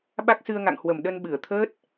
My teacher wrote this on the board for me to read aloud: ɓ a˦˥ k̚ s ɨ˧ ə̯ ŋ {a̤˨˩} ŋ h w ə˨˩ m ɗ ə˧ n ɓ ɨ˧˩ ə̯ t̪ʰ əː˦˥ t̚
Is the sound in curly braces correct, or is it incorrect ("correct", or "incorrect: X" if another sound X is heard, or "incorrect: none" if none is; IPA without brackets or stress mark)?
incorrect: a̰˧˨